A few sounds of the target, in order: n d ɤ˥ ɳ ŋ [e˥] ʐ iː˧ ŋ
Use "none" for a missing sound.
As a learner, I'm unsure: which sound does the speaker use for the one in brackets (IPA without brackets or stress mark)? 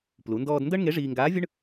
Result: e˧˥